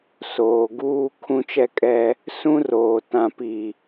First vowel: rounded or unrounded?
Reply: rounded